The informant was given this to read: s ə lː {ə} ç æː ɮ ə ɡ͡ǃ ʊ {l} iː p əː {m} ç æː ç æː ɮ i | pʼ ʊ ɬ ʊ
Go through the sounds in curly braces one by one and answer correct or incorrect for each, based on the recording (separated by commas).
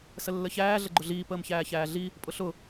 correct, incorrect, correct